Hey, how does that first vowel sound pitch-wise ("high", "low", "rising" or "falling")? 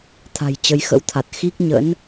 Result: low